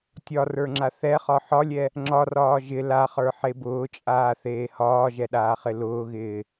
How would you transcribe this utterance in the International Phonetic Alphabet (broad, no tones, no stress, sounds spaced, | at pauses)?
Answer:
tʲ ɒ r ə˞ ŋ͡ǁ a θ ɛ χ ɒ ħ ɒ lʲ ɛ | ŋ͡ǁ ɒ r ɒː ʒ ɪ l a χ ə˞ ħ e b ʊː t͡ʃʼ aː θ eː h ɒː ʒ ɛ ɗ aː χ ɪ l ʊː ɣ ɪː